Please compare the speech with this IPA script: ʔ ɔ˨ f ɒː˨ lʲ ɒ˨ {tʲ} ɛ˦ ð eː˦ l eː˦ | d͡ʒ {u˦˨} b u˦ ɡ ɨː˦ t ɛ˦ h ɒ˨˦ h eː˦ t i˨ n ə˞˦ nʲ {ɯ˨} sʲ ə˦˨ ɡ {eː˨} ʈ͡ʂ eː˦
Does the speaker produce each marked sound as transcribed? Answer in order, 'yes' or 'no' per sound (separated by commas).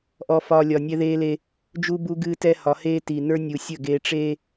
no, no, no, yes